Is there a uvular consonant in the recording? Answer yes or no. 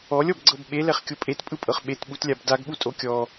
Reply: yes